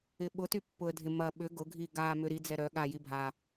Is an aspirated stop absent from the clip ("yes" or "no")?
yes